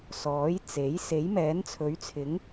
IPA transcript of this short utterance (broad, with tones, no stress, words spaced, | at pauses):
sɔː˨˥jt͡se˨˥j se˨˥jmɛː˨˥nt͡sʰɵ˨˥ɥt͡sʰɪ˨˥ŋ